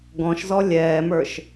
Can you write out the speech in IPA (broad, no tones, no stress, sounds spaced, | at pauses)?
ɡ ɔ̃ ʃ z ɔ lʲ ɛː m ə˞ ʃ